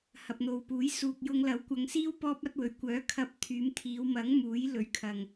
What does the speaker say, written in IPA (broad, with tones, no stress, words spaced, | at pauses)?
hɐ˨p̚n̪o˨wpuː˨˥j suː˨k̚jʊ˧ŋlɐ˨˥w kʷɐ˨˧ŋsiː˥w pɔː˥p̚ɐ˥t̚wɵ˨˧ɥ kʷœː˨˥kʰɐ˧p̚ t̪ʰyː˨˧mt̪ʰiː˨˧wmɐ˨˥ŋ muː˨˥jlɵ˨˥ɥkʰɐ˨ŋ